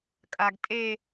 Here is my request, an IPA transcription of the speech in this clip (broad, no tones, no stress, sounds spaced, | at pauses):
kʼ a ɡ tʼ e